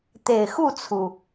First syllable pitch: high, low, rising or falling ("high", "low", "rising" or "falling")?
low